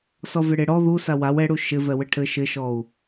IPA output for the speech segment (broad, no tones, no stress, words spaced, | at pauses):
sɔvɪɽɪ ɽɔ ðusa waw ɛɽu ʃɪ vɛwɘʈʰɘ ʃɪʃɔu̯